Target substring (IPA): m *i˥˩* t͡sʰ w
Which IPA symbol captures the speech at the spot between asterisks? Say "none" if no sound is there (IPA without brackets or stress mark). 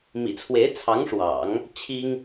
ḭ˨˩